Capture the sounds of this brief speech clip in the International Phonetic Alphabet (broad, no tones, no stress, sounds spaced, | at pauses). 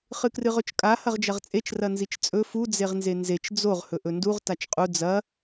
χ ɨ k r ɨ ʁ ɵ t͡ʃ kʼ a h ɐ ʁ d͡ʒ ɐ ʁ t͡sʼ e t͡ʃ r ɐ n z i t͡ʃ t͡sʼ ɵ f u d͡z e ʁ n z e n z e t͡ʃ d͡z o ʁ h ɵ ʔ ɵ n d u ʁ t a t͡ʃ qʼ u d͡z ɐ